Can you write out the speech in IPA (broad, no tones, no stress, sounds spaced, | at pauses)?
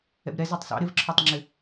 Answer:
ɛ̰ b ɾ ɛ z ɑ tˤ s ɑ̰ ɾ ɪ v ǁʰ ɔ tˤ ŋ͡ǁ ɪ